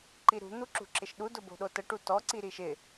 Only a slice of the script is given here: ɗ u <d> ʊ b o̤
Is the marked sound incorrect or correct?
correct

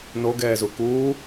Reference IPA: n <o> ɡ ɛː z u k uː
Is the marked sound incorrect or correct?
correct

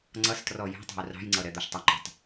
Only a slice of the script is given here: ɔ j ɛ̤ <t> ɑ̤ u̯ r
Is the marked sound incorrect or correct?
incorrect: tˤ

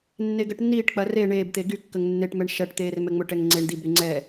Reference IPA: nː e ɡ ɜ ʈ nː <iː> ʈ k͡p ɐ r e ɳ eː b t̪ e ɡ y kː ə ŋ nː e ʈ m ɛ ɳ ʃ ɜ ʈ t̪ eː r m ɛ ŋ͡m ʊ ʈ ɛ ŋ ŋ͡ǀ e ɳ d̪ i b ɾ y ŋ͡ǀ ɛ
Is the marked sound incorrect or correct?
correct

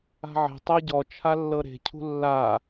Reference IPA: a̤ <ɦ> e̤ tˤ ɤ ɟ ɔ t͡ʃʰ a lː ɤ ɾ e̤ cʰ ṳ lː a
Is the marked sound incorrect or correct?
incorrect: ʕ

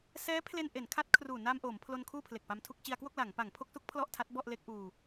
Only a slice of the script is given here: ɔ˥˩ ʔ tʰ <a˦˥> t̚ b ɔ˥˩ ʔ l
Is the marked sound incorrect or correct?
correct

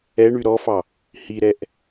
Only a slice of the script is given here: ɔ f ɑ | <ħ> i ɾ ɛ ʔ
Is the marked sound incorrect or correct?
incorrect: h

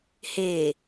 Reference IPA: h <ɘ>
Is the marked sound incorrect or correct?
incorrect: e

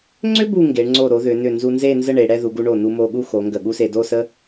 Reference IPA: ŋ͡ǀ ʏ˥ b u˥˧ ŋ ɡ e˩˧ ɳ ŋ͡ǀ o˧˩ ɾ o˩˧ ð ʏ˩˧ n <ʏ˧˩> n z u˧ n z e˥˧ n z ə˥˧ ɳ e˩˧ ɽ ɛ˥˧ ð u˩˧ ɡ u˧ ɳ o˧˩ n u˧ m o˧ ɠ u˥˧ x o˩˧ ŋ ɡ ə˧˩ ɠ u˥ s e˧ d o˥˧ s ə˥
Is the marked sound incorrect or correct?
correct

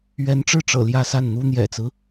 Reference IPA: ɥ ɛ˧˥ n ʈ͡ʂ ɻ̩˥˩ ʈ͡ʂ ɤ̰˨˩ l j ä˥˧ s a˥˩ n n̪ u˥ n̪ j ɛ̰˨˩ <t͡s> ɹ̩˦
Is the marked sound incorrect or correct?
correct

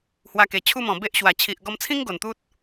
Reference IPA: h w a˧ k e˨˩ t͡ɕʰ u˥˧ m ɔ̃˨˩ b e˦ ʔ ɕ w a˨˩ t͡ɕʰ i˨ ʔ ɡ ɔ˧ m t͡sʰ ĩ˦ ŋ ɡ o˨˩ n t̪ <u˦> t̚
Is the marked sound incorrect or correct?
correct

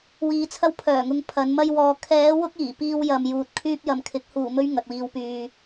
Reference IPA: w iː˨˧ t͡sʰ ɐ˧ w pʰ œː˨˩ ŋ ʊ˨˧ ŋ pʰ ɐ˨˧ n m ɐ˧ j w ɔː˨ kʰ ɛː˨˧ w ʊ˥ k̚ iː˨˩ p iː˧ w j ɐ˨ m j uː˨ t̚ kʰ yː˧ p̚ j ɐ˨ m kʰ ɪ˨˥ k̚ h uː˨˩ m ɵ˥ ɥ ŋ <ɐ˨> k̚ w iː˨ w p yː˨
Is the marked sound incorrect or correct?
correct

